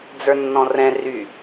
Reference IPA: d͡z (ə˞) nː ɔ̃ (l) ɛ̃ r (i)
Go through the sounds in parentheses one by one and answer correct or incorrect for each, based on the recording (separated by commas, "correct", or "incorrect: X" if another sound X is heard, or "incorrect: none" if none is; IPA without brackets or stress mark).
correct, incorrect: r, incorrect: y